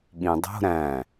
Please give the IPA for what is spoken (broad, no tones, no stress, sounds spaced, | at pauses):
ɠ ĩ dˤ o̤ ɾ æ̃